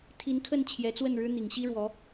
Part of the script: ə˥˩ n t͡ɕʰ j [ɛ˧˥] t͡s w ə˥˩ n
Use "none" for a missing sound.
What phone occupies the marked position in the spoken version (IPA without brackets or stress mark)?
ɛ˧˥